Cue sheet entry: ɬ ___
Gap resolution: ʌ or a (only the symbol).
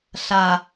a